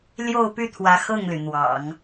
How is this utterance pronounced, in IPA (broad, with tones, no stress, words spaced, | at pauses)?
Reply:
ljo˥˧ʊ̯py˥˩t̪ʰwä˧˥ xɤ˥˩ŋly˩n̪wɑ̰˨˩˦ŋ